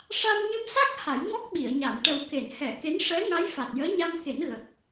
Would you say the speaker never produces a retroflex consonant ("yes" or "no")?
no